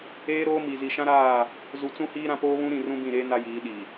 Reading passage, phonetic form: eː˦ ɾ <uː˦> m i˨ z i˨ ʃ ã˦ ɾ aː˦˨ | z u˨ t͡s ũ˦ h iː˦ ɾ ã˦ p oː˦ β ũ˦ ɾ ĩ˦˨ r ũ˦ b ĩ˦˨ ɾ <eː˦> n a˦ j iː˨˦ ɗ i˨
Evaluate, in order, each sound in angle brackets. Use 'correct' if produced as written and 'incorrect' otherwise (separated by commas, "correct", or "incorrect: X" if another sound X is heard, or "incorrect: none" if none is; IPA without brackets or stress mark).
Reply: incorrect: oː˦, correct